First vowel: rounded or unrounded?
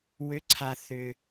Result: rounded